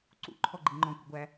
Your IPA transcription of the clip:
ǀ ṵ ǃʰ ɔ ɡ͡ǃ i ŋ͡ǃ ɔ̃ kʷ ɪ ɡʷ æ

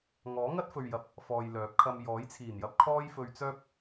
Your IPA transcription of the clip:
ŋ ɔː˨˥ ŋ ɐ˥ t̚ f ɵ˨ ɥ j ɐ˨ p̚ | f ɔː˨ j l œː˨˥ p̚ kʰ ɐ˧ m j ɔː˨˥ j t͡sʰ iː˨˩ n j ɐ˧ p̚ kʰ ɔː˥ j f ɵ˧ ɥ t͡s œː˥ p̚

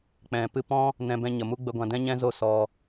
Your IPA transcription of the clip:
k͡p ɛ̃˨ p ɨ˧ p ɔ̃˦ | n ɛ̃˧ b ɛ̃˧ ɲ ə˨ m u˦ ɡ͡b ə˧ ɡʷ ã˧ d ɛ̃˦ ɲ ɛ̃˦ z o˦ s ɔ˧

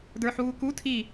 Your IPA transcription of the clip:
d ə˞ ħ uː k u tʰ i

